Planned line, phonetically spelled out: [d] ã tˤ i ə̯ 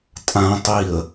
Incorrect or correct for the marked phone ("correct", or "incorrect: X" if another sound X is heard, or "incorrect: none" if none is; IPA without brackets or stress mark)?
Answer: incorrect: tʼ